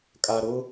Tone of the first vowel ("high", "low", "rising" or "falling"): low